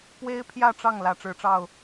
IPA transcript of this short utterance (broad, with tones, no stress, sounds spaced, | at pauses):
p w e˥ ɪ̯ pʰ j ä˥˧ ʈ͡ʂ ɑ˥˩ ŋ l ä˧˥ ʈ͡ʂ ɻ̩˧˥ ʈ͡ʂ ɑ˥˩ ʊ̯